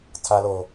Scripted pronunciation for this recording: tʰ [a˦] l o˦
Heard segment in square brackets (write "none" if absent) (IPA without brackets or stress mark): a˦